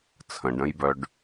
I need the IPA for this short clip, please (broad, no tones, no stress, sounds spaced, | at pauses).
t͡sʰ ə̃ ɖ ə̃ j b œ ɖ